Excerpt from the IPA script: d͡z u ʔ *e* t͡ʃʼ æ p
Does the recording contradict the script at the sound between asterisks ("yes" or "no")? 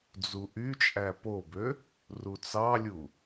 yes